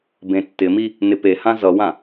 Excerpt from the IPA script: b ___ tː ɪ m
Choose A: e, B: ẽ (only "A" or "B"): B